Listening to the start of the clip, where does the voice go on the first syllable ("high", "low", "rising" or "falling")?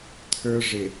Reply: high